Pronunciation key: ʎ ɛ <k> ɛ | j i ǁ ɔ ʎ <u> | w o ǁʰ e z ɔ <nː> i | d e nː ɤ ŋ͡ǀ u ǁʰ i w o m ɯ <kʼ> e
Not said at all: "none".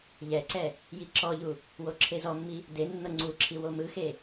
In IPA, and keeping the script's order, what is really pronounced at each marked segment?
ǀ, u, mː, x

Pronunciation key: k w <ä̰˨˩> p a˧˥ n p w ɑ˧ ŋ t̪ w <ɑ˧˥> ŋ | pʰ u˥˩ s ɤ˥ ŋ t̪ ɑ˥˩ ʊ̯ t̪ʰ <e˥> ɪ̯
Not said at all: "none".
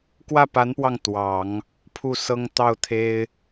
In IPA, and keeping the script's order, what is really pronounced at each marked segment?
ä˥˩, ɑ˨˩˦, e˥

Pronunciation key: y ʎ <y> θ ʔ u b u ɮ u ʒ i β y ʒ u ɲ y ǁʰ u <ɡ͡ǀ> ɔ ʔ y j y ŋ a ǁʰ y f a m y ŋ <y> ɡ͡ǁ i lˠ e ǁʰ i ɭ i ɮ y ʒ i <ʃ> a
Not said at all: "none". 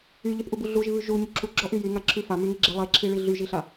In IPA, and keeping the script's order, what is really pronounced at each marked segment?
y, ɡ͡ǁ, i, ɬ

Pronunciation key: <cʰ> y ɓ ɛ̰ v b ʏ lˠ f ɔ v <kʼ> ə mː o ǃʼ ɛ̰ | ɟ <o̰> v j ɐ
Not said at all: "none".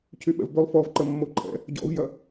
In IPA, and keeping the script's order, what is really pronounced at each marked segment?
cʰ, ǃ, ɔ̰

